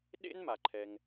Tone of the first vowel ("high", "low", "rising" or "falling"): high